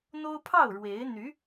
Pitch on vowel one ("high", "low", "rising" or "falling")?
high